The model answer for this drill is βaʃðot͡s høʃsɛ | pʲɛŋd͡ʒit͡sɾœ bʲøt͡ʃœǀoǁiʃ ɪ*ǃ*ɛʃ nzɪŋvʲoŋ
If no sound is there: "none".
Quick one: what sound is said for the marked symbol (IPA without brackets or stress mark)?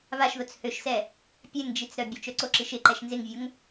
ǃ